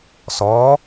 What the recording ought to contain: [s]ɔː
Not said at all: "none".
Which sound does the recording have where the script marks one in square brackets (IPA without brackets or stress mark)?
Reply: s